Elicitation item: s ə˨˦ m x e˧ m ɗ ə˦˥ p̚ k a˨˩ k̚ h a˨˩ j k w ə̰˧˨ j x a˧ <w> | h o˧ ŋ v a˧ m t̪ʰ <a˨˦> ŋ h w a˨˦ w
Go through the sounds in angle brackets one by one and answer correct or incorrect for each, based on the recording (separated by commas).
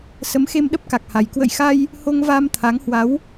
incorrect, correct